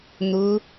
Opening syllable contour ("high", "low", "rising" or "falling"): rising